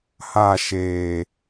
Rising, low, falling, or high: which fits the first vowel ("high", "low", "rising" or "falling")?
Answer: falling